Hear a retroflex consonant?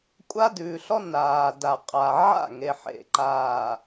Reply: no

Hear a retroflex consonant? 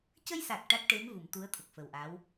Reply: yes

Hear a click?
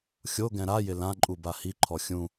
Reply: yes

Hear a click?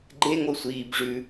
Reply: yes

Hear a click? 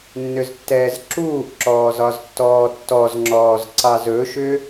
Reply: yes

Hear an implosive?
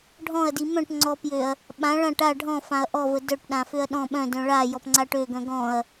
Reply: yes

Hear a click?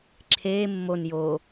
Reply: yes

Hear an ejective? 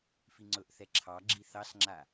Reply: no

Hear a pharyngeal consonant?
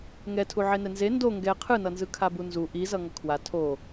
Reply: yes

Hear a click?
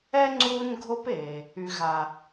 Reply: yes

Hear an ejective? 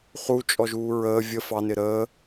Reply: yes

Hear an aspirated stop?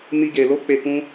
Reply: no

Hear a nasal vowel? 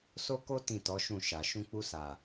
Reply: yes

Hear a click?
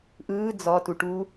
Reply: no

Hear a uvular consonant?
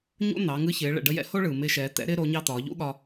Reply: no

